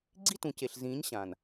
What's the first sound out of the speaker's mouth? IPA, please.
ɡ͡ǀ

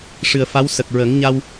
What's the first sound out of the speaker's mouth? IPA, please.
ʂ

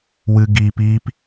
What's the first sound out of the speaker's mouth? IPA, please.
w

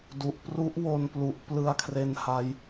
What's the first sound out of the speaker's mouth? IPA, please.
d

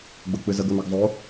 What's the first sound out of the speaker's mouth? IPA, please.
ɡ͡b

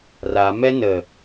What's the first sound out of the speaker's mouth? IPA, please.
r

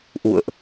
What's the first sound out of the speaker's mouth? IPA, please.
ʔ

